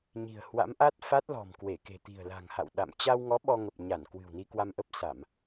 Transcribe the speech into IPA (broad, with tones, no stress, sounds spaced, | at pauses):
ɲ i̤˨˩ ə̯ h w a̰˧˥ m ʔ a˦˥ t̚ f a˦˥ t̚ l ɔ̤˨˩ m k w e˧˩ k e̤˨˩ t̪ i̤˨˩ ə̯ l a̤˨˩ ŋ h a̰˧˨ w ɗ a̰˧˨ m t͡ɕ a˧ w ŋ ɔ˨˦ ɓ ɔ˧ ŋ ə˨˩ p̚ ɲ a˧˩ n k w ɨ̤˨˩ w n i˧ k w a˧ m ʔ ə˦˥ p̚ s a˧˩˨ m